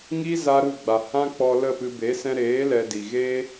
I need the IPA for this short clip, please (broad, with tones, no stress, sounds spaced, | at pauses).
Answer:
ŋ i˦ z a˦ ɾ u˦˨ ɡ͡b a˨ h ã˦ k͡p ɔ˧ l ə˦˨ p ɨ˧ b e˨˦ s ɛ̃˧ ɾ eː˨˦ l ɛ˧ d i˨ ɣ eː˦